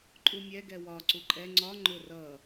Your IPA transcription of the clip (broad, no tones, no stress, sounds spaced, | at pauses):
ǃʼ u mʲ ɛ ɡ ɛ w ɒ ǀ u ǃʼ ɛ ŋ͡ǀ ɒ ŋ͡ǃ ʊ r ʌ